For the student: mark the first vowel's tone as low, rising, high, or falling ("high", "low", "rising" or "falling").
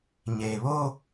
low